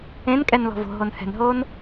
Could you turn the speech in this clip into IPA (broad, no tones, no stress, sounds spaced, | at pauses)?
ẽ n kʼ ɛ n l ɔ̤ v o̤ ɦ o n h ɛ̤ n ɦ oː n